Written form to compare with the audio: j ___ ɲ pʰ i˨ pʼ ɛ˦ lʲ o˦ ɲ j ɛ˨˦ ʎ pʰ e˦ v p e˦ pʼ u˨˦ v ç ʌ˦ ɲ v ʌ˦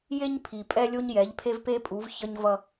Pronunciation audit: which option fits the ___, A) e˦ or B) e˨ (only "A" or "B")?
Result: A